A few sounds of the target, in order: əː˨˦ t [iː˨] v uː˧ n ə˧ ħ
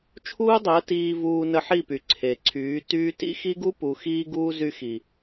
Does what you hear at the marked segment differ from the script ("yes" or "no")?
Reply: yes